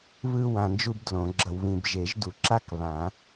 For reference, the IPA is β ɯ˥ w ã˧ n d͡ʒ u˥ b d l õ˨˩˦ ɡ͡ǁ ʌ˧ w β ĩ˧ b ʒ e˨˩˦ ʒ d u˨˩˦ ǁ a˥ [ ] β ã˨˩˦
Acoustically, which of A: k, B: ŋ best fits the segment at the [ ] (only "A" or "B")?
A